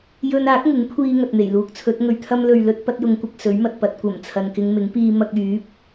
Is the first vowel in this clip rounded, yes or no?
yes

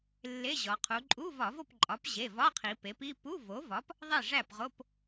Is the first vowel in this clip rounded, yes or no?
no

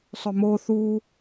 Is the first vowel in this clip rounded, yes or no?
yes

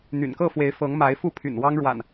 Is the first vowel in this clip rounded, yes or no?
yes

